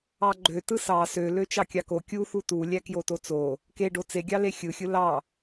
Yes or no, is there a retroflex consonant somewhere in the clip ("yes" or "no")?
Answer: yes